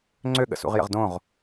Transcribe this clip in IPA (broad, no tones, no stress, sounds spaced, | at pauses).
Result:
ŋ͡ǀ ø ɠ ə̰ s ṵ ʁ j ə̰ ʁ d õ ʁ